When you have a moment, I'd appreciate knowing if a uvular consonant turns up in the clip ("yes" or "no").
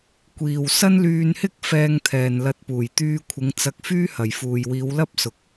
no